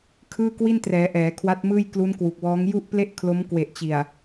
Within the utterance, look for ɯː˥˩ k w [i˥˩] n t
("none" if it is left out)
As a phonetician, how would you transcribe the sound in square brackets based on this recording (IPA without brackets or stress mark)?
i˥˩